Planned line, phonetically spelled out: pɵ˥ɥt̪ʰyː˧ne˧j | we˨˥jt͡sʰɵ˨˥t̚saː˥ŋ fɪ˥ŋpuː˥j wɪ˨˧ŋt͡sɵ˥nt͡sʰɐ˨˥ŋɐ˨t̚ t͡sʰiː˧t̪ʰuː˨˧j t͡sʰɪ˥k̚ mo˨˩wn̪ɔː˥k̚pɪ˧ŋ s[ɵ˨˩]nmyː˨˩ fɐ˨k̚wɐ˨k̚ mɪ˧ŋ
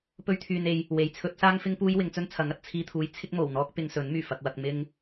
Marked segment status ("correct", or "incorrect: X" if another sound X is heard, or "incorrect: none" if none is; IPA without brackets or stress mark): incorrect: ɵ˨˥